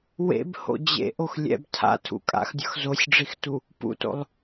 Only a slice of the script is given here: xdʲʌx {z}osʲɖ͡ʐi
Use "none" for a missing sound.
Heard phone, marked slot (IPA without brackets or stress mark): z